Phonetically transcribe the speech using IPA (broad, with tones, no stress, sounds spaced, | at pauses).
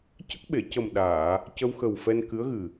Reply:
c ə˦˥ k̚ ɓ e˨˩˨ c ə˨˩ m ɗ aː˨˩˨ | c ə˧ w x ə˨˩ w f ɛ˧ n k ɨ˧˥ ə̯ ɣ ɨ˨˩